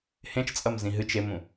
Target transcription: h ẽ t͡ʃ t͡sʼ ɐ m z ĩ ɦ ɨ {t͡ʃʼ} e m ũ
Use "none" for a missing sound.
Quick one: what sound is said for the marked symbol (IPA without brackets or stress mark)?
t͡ʃ